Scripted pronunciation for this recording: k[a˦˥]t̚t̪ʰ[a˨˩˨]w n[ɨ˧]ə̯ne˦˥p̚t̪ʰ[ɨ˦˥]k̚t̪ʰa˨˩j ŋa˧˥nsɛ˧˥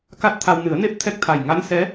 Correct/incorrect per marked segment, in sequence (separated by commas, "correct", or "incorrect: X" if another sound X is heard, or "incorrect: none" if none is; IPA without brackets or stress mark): correct, incorrect: a˧, incorrect: ɨ˨˩˦, incorrect: ɛ˦˥